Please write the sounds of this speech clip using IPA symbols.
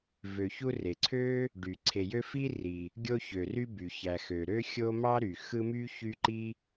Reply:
v ø˨ ç u˦ r e˩ ǀʰ ø˥ | ɖ y˩ ǀʰ e˨ j ø˦ f i˥ r i˨ | ɡʲ o˦ ç ø˩ r y˦ b y˩ ç æ˨ x ø˩ ɾ ø˥ xʲ o˦ m ɑ˥ ɾ y˩ x ɯ˦ m y˥ ç y˦ ǃ i˥

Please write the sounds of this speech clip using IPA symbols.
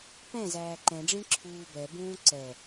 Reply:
p ɛ̃ z æː ǃ ɛ̃ ɖ͡ʐ ĩ ǁʰ uː b ɛ b ũː ǀ ɛ

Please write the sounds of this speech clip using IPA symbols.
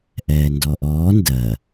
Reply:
ʔ ɛː n d ɔ ʔ ɔː n d ɜ

